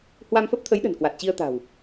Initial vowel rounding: unrounded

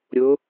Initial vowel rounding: rounded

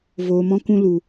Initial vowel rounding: rounded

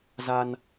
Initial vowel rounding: unrounded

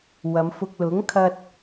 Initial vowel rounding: unrounded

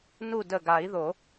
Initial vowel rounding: rounded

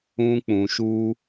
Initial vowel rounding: rounded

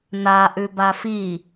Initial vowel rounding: unrounded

